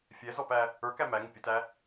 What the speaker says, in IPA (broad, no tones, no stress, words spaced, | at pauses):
fʲɛzɔpæ | ə˞kæ mæŋʊ pʲətæ